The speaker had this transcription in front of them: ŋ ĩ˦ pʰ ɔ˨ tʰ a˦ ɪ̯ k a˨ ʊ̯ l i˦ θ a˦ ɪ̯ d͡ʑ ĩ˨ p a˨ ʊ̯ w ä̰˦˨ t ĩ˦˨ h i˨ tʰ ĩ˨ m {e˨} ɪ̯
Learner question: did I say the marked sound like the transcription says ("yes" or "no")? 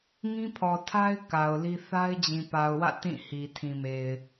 yes